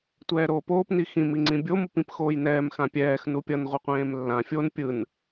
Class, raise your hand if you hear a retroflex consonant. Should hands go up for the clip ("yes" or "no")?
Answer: no